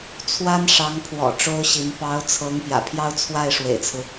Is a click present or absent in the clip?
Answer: absent